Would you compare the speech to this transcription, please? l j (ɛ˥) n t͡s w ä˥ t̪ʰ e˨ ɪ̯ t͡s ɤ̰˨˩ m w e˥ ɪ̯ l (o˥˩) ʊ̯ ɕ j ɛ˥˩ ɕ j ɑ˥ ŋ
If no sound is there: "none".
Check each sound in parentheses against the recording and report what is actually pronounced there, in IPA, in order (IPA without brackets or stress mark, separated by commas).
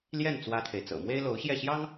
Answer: ɛ˥˩, o˧˥